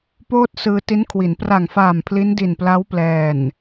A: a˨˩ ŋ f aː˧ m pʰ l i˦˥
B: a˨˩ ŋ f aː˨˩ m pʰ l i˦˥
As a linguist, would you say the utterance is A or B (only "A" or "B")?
B